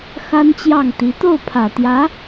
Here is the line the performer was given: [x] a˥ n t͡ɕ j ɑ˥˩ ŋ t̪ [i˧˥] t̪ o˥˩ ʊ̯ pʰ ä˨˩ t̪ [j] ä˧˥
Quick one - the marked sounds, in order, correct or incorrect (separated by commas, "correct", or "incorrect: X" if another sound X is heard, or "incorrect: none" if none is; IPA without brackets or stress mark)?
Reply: correct, correct, correct